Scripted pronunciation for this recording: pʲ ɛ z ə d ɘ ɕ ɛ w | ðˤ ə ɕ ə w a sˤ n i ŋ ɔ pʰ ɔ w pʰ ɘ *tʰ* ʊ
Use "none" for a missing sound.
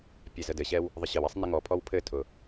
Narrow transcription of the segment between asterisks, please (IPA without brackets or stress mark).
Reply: tʰ